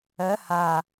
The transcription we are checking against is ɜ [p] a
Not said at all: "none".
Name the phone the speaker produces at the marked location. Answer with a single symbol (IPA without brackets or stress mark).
h